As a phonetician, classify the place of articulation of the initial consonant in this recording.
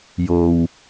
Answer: palatal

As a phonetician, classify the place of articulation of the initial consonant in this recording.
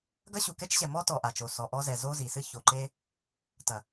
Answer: velar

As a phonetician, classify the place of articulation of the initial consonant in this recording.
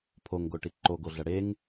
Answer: labial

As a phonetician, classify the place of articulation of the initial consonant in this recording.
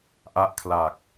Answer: glottal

